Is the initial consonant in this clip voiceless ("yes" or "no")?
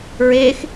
no